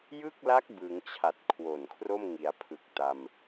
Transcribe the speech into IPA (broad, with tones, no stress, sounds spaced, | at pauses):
j ɯ˥˩ k̚ l a˦˥ k̚ b ɯ˩˦ ŋ t͡ɕʰ a˨˩ t̚ kʰ w o˨˩ n kʰ r o˥˩ m ŋ i˩˦ a̯ pʰ ɯ˨˩ k̚ t a˧ m